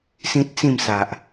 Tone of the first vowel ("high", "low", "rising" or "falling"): high